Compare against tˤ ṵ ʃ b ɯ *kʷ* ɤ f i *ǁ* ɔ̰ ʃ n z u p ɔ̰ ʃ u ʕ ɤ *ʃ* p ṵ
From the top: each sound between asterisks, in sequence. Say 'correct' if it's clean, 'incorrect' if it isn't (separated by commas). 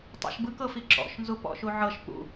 incorrect, correct, correct